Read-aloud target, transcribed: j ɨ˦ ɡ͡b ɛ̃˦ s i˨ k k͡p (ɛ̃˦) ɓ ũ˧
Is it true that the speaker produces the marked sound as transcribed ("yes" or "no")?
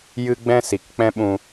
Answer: yes